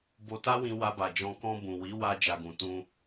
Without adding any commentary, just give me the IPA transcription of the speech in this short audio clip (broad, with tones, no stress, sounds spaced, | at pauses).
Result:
b o˧ t a˦ w ĩ˧ w a˧ b a˨ d͡ʒ ɔ̃˧ k ɔ̃˧ b ũ˨ w i˨˦ w a˧ d͡ʒ a˨ ɡ ũ˨ t ũ˧